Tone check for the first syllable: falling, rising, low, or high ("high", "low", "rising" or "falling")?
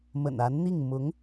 low